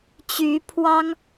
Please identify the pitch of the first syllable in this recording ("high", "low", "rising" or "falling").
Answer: rising